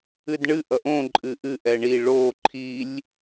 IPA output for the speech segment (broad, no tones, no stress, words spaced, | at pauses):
ɨdɳɨ ʔʌʔõ ǃʼɨʔɨ ʔɛɳi ɭo ǃʰilʲ